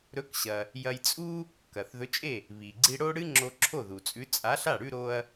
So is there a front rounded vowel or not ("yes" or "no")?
no